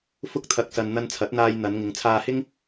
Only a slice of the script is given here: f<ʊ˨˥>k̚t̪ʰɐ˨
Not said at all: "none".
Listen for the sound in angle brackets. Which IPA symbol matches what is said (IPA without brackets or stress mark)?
ʊ˧